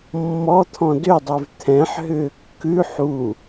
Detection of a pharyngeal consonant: present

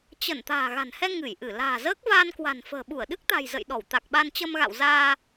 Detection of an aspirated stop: absent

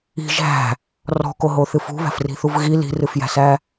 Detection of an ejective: absent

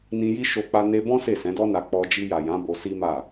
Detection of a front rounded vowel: absent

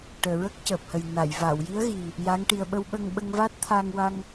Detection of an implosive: present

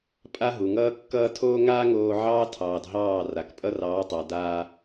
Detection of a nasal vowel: absent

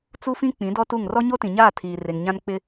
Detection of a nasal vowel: present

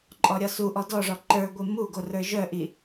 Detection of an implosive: absent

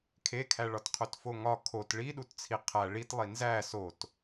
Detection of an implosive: present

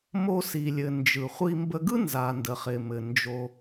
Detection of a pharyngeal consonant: absent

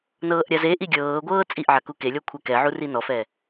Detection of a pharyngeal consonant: present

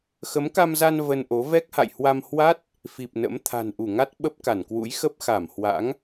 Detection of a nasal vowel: absent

